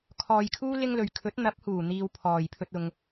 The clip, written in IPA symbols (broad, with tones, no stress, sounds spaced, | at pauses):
kʰ ɔː˨ j kʰ uː˥ l ɪ˥ ŋ l ɵ˨ ɥ kʰ ɵ˨˥ t̚ n̪ ɐ˨˥ p̚ h uː˨˩ n̪ iː˧ w pʰ ɔː˨ j pʰ ɵ˥ t̚ ʊ˧ ŋ